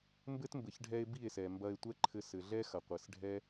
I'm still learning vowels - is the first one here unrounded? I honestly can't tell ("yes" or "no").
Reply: yes